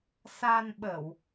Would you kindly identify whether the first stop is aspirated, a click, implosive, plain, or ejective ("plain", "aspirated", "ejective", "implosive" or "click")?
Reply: implosive